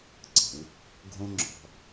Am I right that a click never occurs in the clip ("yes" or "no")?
no